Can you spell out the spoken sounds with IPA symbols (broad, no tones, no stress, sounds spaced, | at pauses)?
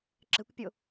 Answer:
ǁ ə̤ kʷ pʲ o